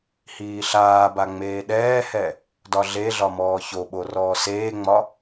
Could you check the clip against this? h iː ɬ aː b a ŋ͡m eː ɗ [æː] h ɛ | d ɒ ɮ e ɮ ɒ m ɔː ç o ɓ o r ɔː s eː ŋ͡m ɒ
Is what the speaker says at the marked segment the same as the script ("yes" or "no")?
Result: no